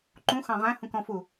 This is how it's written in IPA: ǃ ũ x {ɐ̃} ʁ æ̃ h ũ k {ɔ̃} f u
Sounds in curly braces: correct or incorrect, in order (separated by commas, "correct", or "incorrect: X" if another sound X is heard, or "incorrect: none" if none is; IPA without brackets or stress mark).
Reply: incorrect: ɑ̃, correct